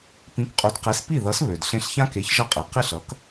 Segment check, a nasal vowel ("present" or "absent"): present